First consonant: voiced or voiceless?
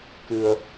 voiceless